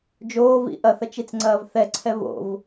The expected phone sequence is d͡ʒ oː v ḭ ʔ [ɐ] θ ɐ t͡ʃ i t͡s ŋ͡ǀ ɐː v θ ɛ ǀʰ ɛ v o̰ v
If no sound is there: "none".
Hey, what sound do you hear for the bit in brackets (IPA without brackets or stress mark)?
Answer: ɐ